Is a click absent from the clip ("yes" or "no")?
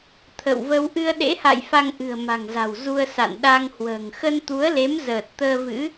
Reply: yes